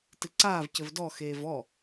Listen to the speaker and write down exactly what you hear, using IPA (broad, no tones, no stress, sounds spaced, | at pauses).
t ɨ ǀ aː v c ɘ v d ɔ x eː v ɔ